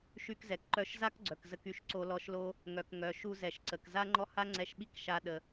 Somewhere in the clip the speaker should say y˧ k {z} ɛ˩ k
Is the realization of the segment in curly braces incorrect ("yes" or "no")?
no